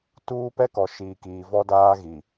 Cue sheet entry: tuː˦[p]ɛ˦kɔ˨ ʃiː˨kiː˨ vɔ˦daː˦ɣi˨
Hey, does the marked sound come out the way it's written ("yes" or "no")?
yes